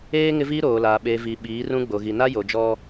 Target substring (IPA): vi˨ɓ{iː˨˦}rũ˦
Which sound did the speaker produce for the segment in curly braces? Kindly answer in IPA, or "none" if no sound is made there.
iː˨˦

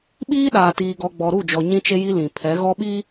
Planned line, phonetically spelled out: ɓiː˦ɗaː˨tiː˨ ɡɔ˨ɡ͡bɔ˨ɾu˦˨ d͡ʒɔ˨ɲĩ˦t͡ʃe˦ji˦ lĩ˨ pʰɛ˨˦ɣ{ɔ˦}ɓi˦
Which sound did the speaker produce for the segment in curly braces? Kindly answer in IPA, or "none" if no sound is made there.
ɔ˦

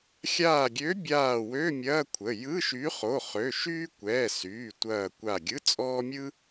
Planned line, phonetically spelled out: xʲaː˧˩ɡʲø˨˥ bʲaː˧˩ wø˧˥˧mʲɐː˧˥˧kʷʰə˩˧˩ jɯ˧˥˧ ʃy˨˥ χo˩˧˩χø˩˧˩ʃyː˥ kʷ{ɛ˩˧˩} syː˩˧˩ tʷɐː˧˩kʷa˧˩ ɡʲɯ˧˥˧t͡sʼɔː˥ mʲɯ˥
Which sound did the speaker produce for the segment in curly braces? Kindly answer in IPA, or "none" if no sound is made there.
ɛː˩˧˩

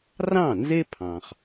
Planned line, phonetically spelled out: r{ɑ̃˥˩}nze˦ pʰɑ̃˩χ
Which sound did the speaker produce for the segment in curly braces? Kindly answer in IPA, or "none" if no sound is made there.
ɑ̃˥˩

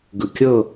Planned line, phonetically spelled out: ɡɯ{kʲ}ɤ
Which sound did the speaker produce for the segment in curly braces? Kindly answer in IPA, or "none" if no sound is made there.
kʲ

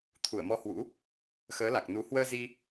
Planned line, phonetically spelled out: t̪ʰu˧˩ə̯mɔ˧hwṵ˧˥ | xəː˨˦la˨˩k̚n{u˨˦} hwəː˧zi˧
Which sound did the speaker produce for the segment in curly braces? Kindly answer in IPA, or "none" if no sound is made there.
u˨˦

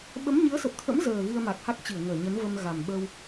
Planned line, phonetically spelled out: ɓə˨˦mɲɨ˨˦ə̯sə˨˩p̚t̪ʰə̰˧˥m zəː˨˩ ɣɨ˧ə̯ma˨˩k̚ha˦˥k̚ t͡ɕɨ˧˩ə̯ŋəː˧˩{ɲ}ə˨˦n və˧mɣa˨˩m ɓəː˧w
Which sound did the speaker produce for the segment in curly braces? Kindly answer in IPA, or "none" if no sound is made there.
ɲ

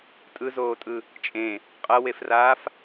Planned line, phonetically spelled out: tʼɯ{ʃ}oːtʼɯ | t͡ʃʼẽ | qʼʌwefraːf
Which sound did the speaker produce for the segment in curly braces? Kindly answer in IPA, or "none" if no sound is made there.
z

